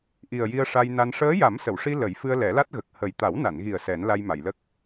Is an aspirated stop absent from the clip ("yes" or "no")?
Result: yes